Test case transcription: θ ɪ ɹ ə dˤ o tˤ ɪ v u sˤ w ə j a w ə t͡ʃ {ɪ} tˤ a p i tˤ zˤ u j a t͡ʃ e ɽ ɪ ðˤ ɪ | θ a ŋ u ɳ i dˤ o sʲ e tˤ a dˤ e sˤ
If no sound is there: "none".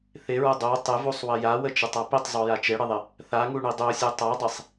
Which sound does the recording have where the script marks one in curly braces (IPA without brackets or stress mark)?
ɪ